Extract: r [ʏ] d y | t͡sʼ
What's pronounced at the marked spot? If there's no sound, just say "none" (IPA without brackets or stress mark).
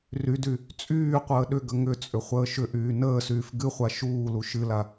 y